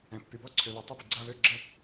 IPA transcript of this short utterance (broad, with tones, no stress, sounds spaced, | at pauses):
ɛ̃˨ pː y˨ b ɔ˥˧ ǀʰ ø˨ β ɛ˨ tˤ o˥˧ b i˨ ɡ͡ǀ a˥˧ β ø˥˧ ɡ͡ǁ ə˥˧